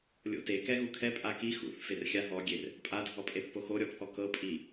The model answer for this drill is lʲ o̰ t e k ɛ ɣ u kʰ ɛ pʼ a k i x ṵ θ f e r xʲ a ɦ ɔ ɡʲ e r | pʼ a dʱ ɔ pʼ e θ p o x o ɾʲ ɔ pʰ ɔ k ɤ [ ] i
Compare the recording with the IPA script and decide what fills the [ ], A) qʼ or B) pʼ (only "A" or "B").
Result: B